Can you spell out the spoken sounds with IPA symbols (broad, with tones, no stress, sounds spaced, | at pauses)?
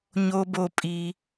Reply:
ɲ o˧ b o˧ pʼ i˧